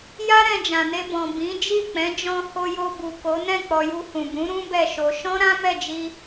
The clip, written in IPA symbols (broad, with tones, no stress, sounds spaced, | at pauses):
j a˦ ɾ ɛ̃˧ d͡ʒ ã˨ n e˧ b ɔ̃˨ b ĩ˨˦ d͡ʒ i˦˨ k͡p ɛ̃˨˦ d͡ʒ ɔ̃˧ h o˧ j o˧ b u˨ k o˨˦ n ɛ̃˦˨ k͡p ɔ˧ j u˧ h ũ˨ b ũ˨˦ ɾ ũ˦ b ɛ˦˨ ʃ o˧ ʃ ɔ̃˦ ɾ ã˦ m ɛ˦˨ d͡ʒ i˧